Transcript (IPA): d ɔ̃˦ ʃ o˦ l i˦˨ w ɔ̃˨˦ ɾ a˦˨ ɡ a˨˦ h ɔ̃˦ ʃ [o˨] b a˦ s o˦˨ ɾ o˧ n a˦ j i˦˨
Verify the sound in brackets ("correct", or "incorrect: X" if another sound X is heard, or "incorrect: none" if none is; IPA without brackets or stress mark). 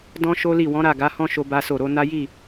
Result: incorrect: o˦